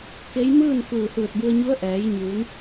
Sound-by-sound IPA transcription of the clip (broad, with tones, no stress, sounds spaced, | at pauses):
k e˧˥ j m ɯː˥˨ n f ɯː˧˩ h ɯː˧˩ t̚ b u˧ ə̯ ɲ u˧˥ ə̯ ʔ ɛː˩˧ j ɲ uː˩˧ n